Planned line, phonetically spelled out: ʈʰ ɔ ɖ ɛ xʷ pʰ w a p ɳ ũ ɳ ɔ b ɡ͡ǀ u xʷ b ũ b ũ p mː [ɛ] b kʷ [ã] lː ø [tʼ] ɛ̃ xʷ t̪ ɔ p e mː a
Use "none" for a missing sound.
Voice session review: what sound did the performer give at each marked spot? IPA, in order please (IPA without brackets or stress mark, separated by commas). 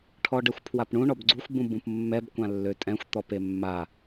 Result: ɛ, ã, tʼ